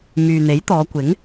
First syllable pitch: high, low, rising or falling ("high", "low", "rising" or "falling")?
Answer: low